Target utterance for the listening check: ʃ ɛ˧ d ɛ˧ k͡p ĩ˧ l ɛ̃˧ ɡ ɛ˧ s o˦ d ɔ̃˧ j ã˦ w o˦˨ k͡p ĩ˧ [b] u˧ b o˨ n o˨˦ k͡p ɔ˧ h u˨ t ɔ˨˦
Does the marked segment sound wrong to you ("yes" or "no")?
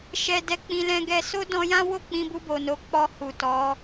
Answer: no